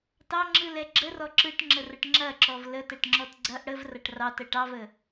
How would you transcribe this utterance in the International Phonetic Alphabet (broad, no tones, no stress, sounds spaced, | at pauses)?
t ɑ ŋ͡ǁ ɯ l ɛ ɡ͡ǁ ə r ɔ ǁ ɯ ʈ ŋ͡ǁ ə r ə ʈ ŋ͡ǁ ɐ ǁ ɔ v l ə t ɛ ʈ ŋ͡ǁ ɔ t ɡ͡ǀ ɐ ʔ ɽ ə v r ɐ ʈ r ɑ t ə ʈ ɑ v ə